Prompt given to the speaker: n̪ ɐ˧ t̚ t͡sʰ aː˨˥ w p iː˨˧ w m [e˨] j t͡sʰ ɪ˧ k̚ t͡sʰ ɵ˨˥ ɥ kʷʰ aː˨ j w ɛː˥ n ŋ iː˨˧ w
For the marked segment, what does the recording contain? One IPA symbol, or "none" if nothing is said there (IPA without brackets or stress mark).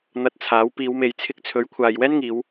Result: e˨˧